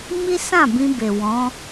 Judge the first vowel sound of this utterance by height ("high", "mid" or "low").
high